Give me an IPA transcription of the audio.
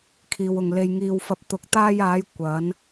kʰ iː˨ w ʊ˨ ŋ l e˧ j ŋ iː˧ w f ɐ˧ p̚ t̪ ʊ˨ k̚ t̪ aː˧ j aː˨˧ j kʷ ɐ˨˧ n

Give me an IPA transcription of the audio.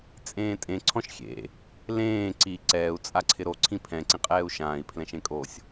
t͡sʼ ẽː tʼ ẽ ǀʰ ɔ̃ ʃ xʲ ḛ | l ẽː ǀ i ǀ ɛː u̯ t͡sʼ a ǀʰ ɪ ɾ o ǀʰ ĩ pʰ ɛ̃ ǀ ĩ qʼ ɛː u̯ ʃ ãː i̯ pʰ l ɛ̃ ʃ ẽ kʼ o sʲ

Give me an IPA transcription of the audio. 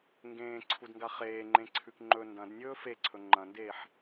ŋ ɡ ẽː ǀʰ u d ŋ ɡ a χ eː ŋ͡ǃ ẽ ǀʰ ʉ k ŋ͡ǃ ɵ n d ɐ̃ d nʲ ɵː f e ǀʰ ɵ ŋ͡ǃ ɐ̃ n d eː ħ

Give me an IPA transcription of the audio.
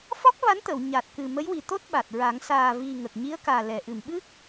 f ɔ˦˥ k̚ v a˧˥ n t̪ ə˨˩˨ w ɲ a˨˩ t̚ k ɨ˨˩ m ə˧˥ j w i˨˩ t̪ o˦˥ t̚ ɓ a˨˩ t̚ ɹ a˨˩˦ ŋ s aː˨˩ v i˨˩ ŋ ə˨˩ k̚ ɲ i˧˥ ə̯ k aː˨˩ l ɛ˨˩˨ ʔ ɨ˨˩˨ m ɓ ɨ˦˥ k̚

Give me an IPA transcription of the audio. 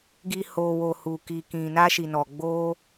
ɡ i˨ h o˨ w o˨ h u˨ k i˨ k ĩ˨ n a˧ ʃ i˨ n ɔ˨ ɡ͡b o˧

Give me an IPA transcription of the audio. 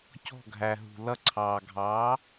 c ɔ̤˧˩ ɡʱ æ˩ ɦ ṳ˩ l ʌ˧˩ ǀʰ ɑː˩ ɡʱ ɑː˩˥

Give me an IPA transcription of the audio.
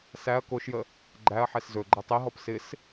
s æ ɐ̯ k o ʃ j ə | ɡ͡ǃ æ ɐ̯ ħ ɛ s z ɵ ɡ͡ǃ æ tˤ i ɦ ɔ p s ɪ s

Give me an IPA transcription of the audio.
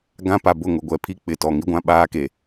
ɡ ã˦ p a˨ b ʊ˦˨ ŋ ʊ˨ ɡʷ ɛ˨ pʰ i˦ k͡p ɪ˨ t ɔ˨ ŋ i˦ ɡʷ ã˦ ɓ aː˦ k e˨

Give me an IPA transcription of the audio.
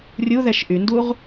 rʲ u ð ɛ ʃ ʔ y n d u ʁ

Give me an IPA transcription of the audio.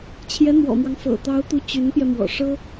t͡ɕʰ j ɛ˧˥ n̪ w ɔ̰˨˩ m w ɑ˦ ŋ f ɤ̰˨˩ t̪ ɑ˧˥ ʊ̯ t̪ u˧˥ t͡ɕ y˧˥ n p j ɛ˧ m w ɔ̰˨˩ ʂ ɤ˥

